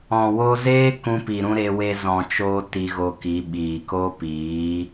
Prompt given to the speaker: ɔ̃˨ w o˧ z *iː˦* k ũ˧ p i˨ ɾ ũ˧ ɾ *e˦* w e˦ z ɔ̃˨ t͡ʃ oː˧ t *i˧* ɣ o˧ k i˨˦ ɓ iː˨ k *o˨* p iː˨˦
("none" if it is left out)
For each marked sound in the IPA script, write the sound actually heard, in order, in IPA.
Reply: eː˦, e˦, i˧, o˦

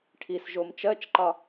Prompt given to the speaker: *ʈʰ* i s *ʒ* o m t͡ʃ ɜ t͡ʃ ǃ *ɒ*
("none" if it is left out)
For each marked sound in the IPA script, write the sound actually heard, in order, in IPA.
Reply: ʈʰ, ʒ, ɒ

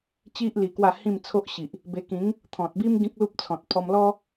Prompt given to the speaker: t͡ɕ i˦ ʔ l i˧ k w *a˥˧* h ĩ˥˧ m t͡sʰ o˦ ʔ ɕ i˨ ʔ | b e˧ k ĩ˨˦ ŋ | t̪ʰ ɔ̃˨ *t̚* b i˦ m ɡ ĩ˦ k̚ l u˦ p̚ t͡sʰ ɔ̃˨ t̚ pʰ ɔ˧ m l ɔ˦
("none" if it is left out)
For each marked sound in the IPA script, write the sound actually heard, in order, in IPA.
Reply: a˥˧, t̚

